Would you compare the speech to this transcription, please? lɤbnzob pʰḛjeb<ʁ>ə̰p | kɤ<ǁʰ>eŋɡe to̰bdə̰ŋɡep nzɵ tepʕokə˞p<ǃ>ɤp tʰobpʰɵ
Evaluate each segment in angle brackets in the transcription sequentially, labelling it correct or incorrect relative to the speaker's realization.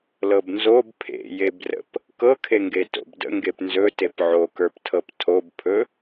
incorrect, incorrect, incorrect

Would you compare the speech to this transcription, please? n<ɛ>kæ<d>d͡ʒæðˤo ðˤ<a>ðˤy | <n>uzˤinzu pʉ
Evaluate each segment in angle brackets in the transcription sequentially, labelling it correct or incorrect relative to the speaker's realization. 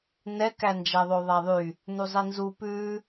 correct, incorrect, incorrect, correct

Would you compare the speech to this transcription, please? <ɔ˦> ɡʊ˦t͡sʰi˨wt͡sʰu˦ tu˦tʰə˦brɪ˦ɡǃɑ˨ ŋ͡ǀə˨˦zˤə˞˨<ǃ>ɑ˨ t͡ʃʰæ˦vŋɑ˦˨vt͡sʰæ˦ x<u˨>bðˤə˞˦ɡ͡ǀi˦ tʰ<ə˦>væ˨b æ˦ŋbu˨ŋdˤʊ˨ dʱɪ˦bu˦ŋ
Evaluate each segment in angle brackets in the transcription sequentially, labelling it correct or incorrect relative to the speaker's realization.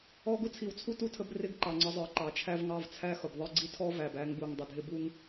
correct, correct, incorrect, incorrect

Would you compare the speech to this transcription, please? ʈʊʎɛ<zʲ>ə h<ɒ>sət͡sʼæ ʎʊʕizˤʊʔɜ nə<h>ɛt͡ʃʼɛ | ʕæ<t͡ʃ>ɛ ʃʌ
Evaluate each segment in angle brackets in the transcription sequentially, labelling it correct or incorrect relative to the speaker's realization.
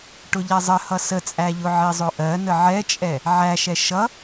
incorrect, incorrect, incorrect, incorrect

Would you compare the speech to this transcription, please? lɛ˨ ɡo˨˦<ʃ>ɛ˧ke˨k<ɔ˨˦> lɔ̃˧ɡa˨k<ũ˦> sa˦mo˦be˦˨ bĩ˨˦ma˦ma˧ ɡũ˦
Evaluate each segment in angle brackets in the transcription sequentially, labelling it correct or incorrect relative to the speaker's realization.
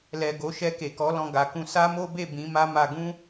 correct, correct, incorrect

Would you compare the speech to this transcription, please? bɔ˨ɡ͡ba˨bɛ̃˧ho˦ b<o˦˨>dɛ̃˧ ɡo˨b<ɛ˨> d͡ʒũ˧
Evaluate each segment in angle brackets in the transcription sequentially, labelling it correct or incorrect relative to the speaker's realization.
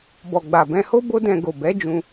incorrect, incorrect

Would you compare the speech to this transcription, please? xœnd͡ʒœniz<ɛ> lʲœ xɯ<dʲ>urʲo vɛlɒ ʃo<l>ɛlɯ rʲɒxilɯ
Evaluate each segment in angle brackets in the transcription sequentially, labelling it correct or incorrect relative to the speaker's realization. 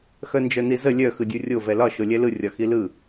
incorrect, correct, incorrect

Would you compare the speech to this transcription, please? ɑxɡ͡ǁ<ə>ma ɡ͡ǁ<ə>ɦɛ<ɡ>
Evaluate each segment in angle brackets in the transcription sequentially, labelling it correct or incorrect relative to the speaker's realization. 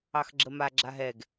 correct, incorrect, correct

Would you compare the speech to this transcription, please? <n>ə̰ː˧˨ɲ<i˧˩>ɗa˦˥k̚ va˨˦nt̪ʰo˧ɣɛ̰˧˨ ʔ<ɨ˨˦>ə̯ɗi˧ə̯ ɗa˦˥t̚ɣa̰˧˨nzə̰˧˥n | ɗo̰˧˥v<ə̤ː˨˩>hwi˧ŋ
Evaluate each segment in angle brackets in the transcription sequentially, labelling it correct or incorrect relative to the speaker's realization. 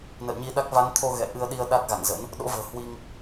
correct, incorrect, incorrect, correct

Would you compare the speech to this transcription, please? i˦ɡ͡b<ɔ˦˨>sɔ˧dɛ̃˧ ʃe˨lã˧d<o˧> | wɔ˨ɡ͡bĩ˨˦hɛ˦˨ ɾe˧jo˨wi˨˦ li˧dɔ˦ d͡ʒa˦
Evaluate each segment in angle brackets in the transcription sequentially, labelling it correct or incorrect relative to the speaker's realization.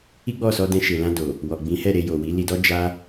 correct, incorrect

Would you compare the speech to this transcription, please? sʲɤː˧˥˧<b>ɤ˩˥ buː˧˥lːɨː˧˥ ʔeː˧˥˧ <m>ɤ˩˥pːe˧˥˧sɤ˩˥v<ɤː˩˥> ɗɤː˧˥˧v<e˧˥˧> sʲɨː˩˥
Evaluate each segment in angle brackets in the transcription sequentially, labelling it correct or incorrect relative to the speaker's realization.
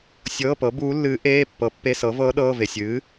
incorrect, incorrect, incorrect, incorrect

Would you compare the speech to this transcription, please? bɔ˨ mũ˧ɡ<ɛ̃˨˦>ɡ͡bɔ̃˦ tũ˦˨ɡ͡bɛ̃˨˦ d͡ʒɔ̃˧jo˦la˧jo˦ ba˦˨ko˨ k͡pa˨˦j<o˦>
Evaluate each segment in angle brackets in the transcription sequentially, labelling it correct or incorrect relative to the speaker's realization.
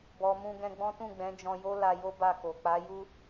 incorrect, incorrect

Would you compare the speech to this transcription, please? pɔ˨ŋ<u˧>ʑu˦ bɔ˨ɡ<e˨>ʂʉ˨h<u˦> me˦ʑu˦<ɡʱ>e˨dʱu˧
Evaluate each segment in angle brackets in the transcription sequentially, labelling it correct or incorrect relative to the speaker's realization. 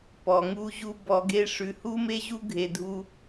incorrect, incorrect, correct, correct

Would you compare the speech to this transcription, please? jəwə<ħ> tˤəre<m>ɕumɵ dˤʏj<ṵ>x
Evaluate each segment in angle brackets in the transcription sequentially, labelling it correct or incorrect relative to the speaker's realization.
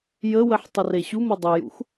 correct, incorrect, correct

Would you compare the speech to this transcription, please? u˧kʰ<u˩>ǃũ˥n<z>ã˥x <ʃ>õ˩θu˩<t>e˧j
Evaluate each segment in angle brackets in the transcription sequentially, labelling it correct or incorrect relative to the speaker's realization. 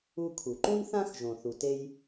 correct, incorrect, incorrect, correct

